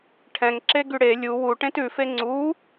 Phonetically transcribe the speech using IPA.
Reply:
ʈʰ ɛ̃ ŋ ǁ e ɡ y ɽ e lʲ u w u ʈ ẽ t ʉ f e ŋ͡ǀ u

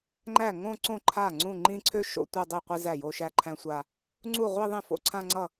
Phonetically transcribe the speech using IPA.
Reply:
ŋ͡ǃ æ˥˩ ŋ õ˥˧ ǀ õ˥˩ ǃʰ a˥˩ ŋ͡ǀ ũ˥˩ ŋ͡ǃ ĩ˥˧ ǀʰ ø˥˧ ʃ o̰˥˧ tʷ æ˥˧ dˤ i˥˩ qʷ i˥˧ z æ˥˩ j o˥˧ ʃ æ˥˧ ǃʰ æ̃˥˧ sʷ a˥˧ | ŋ͡ǀ u˥˩ ʁʷ i˥˧ ðˤ ĩ˥˩ f o̰˥˩ ǀʰ ã˥˧ ŋ͡ǀ ʌ˥˩

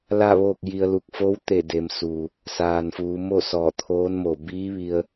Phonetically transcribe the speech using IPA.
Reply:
l a˥˨ ʋ oː˥˨ k̚ j i˧ ə̯ l u˧ k̚ f o˧˥ w t̪ e˧˩ d e˩˧ m s u˩ | s aː˩ n f uː˩˧ m o˥˨ s ɔː˧˩ t̪ʰ oː˧˥ n m o˧˩ b iː˧˥ ʋ i˧ ə̯

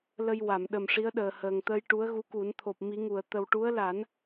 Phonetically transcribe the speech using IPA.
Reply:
l ə˧ j w a˨˩˨ m ɗ ə˨˩ m ʂ i˧˥ ə̯ ɗ əː˨˩ h əː˨˩ ŋ t̪ əː˧ j ʈ u˧˥ ə̯ ɣ u˧˥ k u˨˩˦ n t̪ʰ o˨˩ p̚ m i˨˩˦ ŋ u˨˩˨ ə̯ t̪ ə˨˩ w ʈ u˧˥ ə̯ l a˨˩˦ n

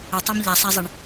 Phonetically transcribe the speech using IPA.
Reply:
ə tˤ a m ʎ a sˤ æ zˤ e ɳ

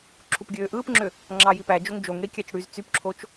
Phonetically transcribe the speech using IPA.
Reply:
ǁʰ u p ɡʲ øː ʔ ɯː p ŋ͡ǁ ø | ŋ͡ǁ ɑ j i p æ d͡ʒ o ŋ d͡ʒ o ŋ ɽ i kʲ æ t͡ʃ ɽ y z t͡s y p ǁʰ o t͡ʃ

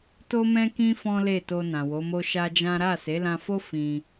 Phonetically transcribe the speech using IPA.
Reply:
t o˦ m ɛ̃˦ k ĩ˦ f ɔ̃˦ l e˦˨ t o˧ n ã˨ w o˨˦ m o˦ ʃ a˦ d͡ʒ ã˦ ɾ a˦˨ s e˨˦ l ã˧ f o˦ f ĩ˧

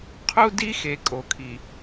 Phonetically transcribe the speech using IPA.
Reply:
qʰ u˦ d i˦ x e˨ kʼ o˨ kʰ i˨

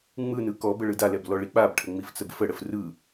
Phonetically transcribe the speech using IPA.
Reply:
ŋ͡m ɯ n ɯ k ɔ b ə ɭ ɯ d a l ɛ b l ɔ ɭ i k͡p a b ʈʰ ə ŋ͡m i f t͡s ə b f ə ɽ ə f r ɯ

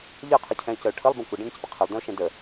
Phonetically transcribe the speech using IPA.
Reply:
ʎ ɜ qʰ ʌ cʰ ɛ̃ ɪ̯ c ə ʊ̯ ʈʰ ə lˠ b ə̃ kʷ ʌ ɖ ə̃ ɳ ə̃ c p ə qʰ ɪ lˠ d ə̃ ʊ̯ ʃ ɛ̃ d ə

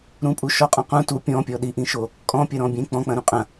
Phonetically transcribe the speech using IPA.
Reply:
ɾ ũ pʼ u ʃ ɔ qʼ ɔ̃ q ũ t u pʲ ɔ̃ pʲ ɔ ɗ i ʔ ĩ ʃ o | kʼ ɔ̃ pʲ ɐ ɾ ɔ̃ bʲ ẽ k͡p ɔ̃ k͡p ɐ̃ ɾ ũ qʼ ɐ̃

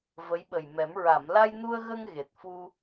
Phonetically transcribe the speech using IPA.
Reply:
v ə˧˥ j ɓ ə˨˩ j m ɛ˨˩˦ m ɹ a˨˩˨ m l a˧ j n u˧ ə̯ ɣ ə˧ ŋ ɣ e˨˩ t̚ f u˧

